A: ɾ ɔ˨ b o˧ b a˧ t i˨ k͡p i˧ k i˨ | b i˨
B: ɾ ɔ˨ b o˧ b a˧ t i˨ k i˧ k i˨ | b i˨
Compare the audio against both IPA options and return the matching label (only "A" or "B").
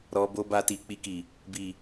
A